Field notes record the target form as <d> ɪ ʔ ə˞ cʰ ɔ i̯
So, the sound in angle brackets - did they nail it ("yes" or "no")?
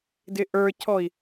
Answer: yes